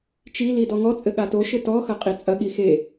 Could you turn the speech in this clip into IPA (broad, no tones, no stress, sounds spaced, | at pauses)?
t͡ʃ i l i d ɔ ŋ ɔ t͡sʼ ɘ ɠ a t o ʃ ɘ t ɔ x ɐ qʼ i t͡sʼ ɐ ɠ i x e